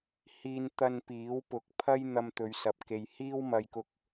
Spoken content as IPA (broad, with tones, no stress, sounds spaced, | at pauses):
h iː˧ n t̪ ɐ˧ n p iː˨˥ w p ʊ˨˥ k̚ pʰ ɐ˥ j n̪ ɐ˧ m t̪ ɵ˨˧ ɥ s ɐ˨ p̚ k e˨ j h iː˥ w m ɐ˧ j k ʊ˧ k̚